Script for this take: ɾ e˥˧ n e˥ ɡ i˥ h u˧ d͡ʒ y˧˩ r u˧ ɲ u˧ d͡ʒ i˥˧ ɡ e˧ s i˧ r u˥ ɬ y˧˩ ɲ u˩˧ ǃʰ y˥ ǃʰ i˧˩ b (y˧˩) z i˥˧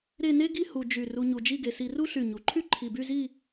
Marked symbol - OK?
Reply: no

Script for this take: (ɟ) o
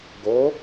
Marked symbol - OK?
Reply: no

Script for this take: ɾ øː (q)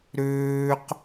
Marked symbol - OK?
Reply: yes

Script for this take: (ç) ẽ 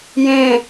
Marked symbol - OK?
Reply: no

